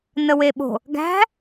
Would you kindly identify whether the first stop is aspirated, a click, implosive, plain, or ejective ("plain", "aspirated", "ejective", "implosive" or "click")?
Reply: implosive